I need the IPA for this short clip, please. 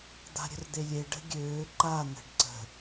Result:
d̪ a̤ ɾʲ ə̤ r d̪ e lʲ e ɖ ə̤ ɡʲ øː ǃ a n̪ ə̤ ɖ ǀ ə̤

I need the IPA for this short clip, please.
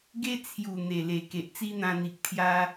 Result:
ɡ e˦ t͡sʰ j u˨˩ n̪ e˨˩ l e˨˩ k e˨ ʔ t͡s i˦ n̪ ã˧ n̪ i˨ k̚ t̪ʰ j a˦

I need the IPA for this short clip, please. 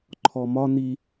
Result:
ǃʰ ɔ m ɒ n i

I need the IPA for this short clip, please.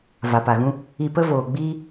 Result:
v a˨ p a˨ ɣ ũ˦ | i˧ p ə˦ v oː˨ ɡ͡b iː˦

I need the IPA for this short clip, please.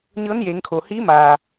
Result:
ɲ ɤː˧˥ n j eː˩˧ ŋ kʰ oː˩ h iː˧˥ m aː˩

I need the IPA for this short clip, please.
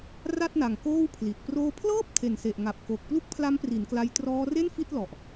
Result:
r a˥˩ t̚ n a˨˩ ŋ k oː˥˩ w pʰ l i˨˩ t̚ p r oː˧ pʰ l ɤː˥˩ p̚ tʰ e˨˩ n s e˨˩ ʔ ŋ a˨˩ p̚ k o˨˩ k̚ p l u˥˩ k̚ pʰ l a˦˥ m p r i˩˦ n k l a˧ j t r ɔː˧ r e˥˩ n f i˥˩ t̚ l ɔ˨˩ ʔ

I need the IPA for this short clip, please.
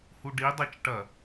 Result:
h u ɖ i dˤ ɨ t͡ʃ ʈ ɐ

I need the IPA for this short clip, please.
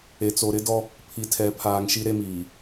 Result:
e˨ t͡s o˨ ɾ ɪ˦ d ɔ˦ | pʰ i˨ tʰ ɛ˨˦ pʰ aː˨ ŋ ʃ i˦ ɾ e˦ m iː˨

